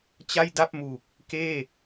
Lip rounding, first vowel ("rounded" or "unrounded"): unrounded